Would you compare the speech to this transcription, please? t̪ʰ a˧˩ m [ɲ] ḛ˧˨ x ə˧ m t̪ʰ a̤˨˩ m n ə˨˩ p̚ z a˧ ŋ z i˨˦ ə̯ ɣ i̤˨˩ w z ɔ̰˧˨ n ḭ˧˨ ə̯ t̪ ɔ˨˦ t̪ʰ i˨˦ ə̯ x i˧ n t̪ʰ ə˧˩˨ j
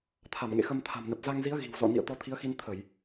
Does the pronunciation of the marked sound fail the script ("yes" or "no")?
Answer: yes